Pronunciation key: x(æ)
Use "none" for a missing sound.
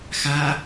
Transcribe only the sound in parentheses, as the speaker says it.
a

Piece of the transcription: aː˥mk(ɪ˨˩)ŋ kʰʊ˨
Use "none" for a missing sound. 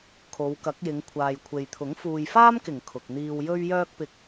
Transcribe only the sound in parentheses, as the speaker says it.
ɪ˨˩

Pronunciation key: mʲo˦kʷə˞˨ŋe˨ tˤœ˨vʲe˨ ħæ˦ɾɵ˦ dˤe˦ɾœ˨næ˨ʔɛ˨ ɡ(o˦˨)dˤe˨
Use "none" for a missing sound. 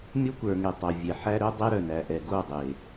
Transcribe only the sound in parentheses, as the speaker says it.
o˦˨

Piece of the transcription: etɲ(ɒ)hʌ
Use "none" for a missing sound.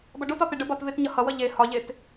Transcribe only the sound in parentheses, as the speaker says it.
ʌ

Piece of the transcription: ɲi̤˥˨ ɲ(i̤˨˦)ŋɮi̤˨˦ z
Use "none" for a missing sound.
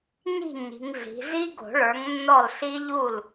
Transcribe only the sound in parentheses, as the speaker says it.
i̤˨˦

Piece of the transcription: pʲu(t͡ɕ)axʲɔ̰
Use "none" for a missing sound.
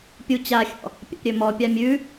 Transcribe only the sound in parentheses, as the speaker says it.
t͡ɕ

